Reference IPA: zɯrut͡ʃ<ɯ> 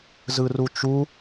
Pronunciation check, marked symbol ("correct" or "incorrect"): incorrect